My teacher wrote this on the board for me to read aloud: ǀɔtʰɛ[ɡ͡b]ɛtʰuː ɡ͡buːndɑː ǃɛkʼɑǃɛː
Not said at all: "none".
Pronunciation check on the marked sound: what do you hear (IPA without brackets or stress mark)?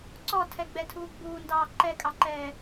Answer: ɡ͡b